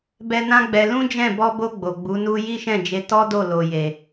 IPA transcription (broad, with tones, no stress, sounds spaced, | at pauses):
b ɛ˧ n ã˦ ɡ͡b ɛ˧ l ũ˦ d͡ʒ ɛ̃˦˨ b ɔ˧ b o˧ ɡ͡b o˨ ɡ͡b u˨˦ n u˦ j i˦ ʃ ɛ̃˦˨ d͡ʒ e˧ t ɔ˦ d o˦˨ l o˨ j e˨